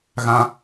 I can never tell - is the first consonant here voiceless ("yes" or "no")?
no